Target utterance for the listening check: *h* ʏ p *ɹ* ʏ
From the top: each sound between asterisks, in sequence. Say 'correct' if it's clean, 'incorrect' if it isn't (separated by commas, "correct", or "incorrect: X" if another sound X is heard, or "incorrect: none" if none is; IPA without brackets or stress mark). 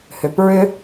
correct, correct